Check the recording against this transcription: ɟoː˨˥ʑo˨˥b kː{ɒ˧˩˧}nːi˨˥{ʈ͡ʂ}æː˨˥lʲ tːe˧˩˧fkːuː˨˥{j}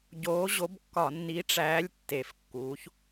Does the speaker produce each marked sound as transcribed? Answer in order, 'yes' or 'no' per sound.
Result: yes, yes, no

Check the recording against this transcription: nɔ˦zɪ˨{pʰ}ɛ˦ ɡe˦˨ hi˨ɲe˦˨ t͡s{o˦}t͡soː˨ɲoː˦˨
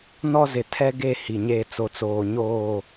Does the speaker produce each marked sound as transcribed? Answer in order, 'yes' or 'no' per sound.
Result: no, no

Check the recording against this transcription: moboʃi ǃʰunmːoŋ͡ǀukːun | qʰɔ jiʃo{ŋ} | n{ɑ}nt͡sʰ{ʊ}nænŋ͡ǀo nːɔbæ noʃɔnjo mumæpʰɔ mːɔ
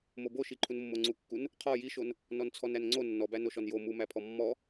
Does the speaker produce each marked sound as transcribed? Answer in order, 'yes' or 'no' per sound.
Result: no, no, no

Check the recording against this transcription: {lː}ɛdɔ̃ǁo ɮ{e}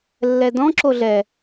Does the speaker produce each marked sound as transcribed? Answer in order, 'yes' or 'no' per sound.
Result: yes, no

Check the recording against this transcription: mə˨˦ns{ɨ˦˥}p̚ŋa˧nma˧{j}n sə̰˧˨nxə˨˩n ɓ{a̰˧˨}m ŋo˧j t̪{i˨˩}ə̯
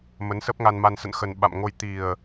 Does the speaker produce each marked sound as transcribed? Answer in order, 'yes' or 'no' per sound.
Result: no, no, yes, yes

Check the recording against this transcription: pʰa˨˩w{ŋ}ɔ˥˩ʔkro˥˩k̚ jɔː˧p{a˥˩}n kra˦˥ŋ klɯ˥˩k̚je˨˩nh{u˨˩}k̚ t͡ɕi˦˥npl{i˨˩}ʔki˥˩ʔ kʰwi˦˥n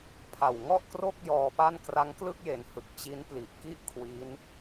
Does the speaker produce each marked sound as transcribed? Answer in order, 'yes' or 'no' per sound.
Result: yes, yes, no, yes

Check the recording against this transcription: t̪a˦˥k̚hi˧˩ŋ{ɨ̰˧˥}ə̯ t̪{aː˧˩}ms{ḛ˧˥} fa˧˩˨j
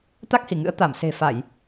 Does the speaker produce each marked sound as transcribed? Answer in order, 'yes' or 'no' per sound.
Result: yes, no, no

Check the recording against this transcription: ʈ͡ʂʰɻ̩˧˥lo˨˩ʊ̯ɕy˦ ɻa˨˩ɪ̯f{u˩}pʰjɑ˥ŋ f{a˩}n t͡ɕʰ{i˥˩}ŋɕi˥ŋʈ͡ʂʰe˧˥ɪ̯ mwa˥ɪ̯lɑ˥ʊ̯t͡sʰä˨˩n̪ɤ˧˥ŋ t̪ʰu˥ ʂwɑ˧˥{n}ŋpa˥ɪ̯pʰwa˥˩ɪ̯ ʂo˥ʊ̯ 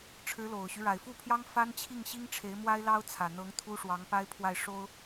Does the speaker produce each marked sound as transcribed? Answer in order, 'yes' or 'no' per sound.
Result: no, no, yes, no

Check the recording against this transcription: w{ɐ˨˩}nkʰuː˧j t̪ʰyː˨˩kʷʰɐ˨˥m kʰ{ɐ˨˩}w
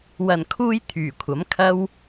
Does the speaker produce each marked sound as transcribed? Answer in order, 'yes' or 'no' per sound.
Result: yes, no

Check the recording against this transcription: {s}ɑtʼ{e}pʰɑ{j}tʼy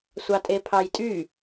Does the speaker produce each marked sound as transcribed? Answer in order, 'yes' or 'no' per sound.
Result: no, yes, yes

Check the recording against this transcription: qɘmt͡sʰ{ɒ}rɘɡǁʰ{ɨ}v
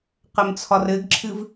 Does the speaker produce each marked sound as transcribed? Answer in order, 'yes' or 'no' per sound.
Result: yes, yes

